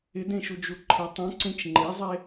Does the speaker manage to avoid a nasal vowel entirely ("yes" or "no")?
no